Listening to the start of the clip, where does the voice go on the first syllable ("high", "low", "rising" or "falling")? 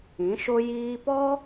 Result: rising